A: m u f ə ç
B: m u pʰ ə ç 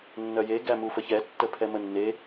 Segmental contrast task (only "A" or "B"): A